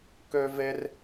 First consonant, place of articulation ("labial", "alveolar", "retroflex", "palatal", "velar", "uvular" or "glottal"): velar